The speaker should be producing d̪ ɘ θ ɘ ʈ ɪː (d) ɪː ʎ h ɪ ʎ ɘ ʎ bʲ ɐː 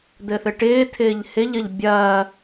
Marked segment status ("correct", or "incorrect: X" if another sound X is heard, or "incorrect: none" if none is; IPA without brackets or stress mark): incorrect: t̪ʰ